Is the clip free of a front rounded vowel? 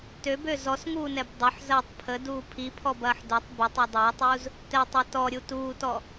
no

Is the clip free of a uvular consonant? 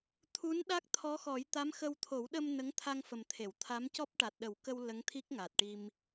yes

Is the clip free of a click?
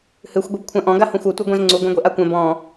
no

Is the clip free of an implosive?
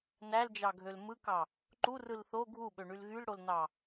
no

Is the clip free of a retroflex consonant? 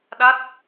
yes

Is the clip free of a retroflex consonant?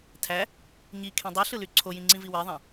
yes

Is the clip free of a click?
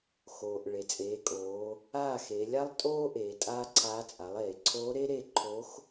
no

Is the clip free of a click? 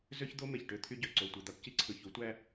no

